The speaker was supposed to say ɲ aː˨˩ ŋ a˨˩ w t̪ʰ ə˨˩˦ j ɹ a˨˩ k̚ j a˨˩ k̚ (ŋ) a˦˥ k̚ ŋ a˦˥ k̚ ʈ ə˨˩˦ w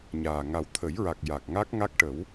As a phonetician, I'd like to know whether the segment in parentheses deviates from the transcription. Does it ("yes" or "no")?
no